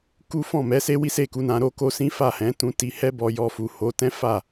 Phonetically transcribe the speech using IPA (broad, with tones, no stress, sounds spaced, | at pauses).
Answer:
k u˦ f ɔ̃˦˨ m ɛ˨˦ s e˦ w i˦ s e˦˨ k u˨˦ n ã˧ ɾ o˦ k o˦ s ĩ˦ f a˦˨ h ɛ̃˨˦ t ũ˧ t i˧ h ɛ˦ b ɔ˧ j ɔ˧ f u˨ h o˨˦ t ɛ̃˦ f a˦˨